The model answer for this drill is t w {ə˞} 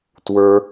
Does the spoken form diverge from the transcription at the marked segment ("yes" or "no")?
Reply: no